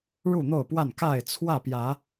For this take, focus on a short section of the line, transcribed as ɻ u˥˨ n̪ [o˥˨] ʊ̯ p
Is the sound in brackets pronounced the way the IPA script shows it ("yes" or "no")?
yes